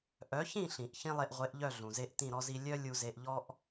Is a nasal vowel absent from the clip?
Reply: no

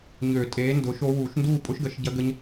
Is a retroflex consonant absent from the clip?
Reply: yes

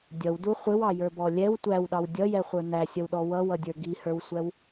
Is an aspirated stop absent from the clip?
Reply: yes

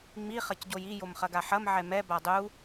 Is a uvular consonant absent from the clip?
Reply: no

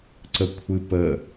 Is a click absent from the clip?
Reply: no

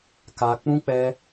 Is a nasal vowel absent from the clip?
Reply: no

